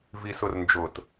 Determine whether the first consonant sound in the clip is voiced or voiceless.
voiced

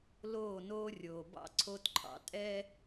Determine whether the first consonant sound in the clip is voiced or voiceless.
voiced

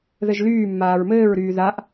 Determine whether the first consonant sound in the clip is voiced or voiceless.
voiced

